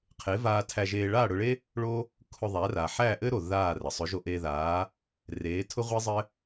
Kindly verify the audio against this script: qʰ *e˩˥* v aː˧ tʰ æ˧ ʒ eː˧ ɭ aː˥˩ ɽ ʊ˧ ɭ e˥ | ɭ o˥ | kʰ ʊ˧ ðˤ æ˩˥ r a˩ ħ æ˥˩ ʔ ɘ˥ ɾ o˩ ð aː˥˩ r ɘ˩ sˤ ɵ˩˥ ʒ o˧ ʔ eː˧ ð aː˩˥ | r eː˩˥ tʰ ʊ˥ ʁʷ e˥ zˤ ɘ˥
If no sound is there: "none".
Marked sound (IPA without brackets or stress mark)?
e˩˥